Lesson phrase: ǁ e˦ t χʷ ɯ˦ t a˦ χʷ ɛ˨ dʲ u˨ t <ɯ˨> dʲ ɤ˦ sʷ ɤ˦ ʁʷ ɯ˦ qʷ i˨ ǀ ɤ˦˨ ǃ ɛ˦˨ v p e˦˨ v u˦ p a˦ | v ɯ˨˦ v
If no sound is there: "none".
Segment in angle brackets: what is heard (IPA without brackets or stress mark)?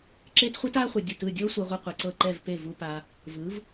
ɯ˦˨